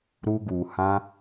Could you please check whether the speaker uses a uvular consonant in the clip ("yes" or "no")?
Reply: no